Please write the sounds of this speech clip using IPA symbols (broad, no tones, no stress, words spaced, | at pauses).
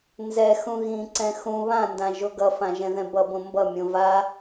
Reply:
nzɛ xũɣĩǀɛ̃ xũ βãndã ʒoɡʌfã ʒɛ̃ðɛ̃bʌbõ mbʌmʲõ va